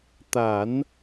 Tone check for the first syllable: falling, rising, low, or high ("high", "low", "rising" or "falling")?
low